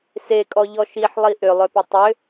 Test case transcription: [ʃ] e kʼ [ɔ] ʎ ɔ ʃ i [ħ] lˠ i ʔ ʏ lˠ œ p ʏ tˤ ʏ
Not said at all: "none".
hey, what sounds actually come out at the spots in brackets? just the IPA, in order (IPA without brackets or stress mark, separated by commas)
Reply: s, ɔ, ħ